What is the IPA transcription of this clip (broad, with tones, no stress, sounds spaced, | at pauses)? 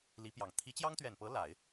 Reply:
l i˧˥ p j ɑ˨˩ ŋ t̪ʰ i˧˥ t͡ɕ j ɑ˥ ŋ t̪ ɥ ɛ˨˩ n p ɤ˧˥ l a˨˩˦ ɪ̯